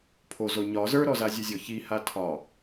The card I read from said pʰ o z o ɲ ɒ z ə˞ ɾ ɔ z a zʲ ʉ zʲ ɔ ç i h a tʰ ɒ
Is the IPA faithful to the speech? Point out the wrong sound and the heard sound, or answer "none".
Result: none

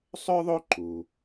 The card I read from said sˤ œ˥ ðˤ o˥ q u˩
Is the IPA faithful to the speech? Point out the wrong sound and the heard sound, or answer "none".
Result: q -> ǃ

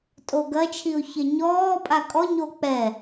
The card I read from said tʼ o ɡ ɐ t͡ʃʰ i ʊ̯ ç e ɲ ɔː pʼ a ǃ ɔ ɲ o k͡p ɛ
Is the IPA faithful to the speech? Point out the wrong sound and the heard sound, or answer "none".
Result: ǃ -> kʼ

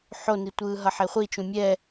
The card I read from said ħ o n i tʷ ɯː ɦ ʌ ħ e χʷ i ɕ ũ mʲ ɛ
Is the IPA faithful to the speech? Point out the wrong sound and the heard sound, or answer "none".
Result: ɕ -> t͡ʃ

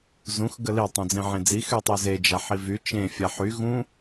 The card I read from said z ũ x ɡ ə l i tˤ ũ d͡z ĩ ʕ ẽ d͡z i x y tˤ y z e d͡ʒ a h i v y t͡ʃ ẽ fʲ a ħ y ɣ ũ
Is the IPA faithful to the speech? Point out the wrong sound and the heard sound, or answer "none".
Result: h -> ħ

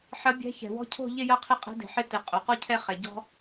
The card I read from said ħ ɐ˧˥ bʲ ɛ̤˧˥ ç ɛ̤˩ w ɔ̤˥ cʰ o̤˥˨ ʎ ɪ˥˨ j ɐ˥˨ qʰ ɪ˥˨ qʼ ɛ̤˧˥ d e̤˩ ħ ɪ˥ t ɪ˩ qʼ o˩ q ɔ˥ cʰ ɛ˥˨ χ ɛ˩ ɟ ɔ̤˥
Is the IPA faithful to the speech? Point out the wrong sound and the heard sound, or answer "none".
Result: none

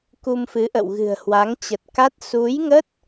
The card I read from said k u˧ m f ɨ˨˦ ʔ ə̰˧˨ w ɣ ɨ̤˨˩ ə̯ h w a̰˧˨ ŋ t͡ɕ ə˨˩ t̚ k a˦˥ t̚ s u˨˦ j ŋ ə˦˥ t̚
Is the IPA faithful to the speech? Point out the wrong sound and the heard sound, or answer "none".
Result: a̰˧˨ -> a˨˦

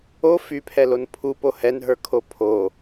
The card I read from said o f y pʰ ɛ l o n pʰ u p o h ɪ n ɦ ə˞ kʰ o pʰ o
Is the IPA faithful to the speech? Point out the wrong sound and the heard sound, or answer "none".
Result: ɪ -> ɛ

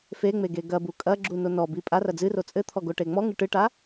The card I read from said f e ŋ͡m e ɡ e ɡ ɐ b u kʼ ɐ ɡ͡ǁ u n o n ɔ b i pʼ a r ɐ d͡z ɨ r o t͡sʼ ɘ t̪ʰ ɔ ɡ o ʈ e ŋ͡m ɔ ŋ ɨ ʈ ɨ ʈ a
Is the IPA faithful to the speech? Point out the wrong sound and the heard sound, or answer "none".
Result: none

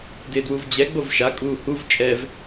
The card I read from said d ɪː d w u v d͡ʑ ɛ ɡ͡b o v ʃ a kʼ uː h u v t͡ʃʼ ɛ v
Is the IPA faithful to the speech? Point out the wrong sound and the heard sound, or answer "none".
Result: none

